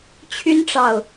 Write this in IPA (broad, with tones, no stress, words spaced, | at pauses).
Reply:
t͡ɕʰy˥nʈ͡ʂɑ˨ʊ̯